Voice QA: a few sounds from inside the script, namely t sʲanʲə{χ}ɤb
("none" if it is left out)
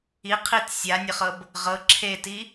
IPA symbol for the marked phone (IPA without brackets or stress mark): χ